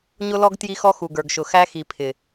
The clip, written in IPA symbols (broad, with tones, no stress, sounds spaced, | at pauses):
ɲ ʊ˦ l ɔ˦ ɡ t j i˦ x ɔ˦ x u˨ ɡ ə˞˨ ɡ ʃ ʊ˨ x æ˦ x i˨ pʰ ɪ˨